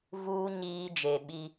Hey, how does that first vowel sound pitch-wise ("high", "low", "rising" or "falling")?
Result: high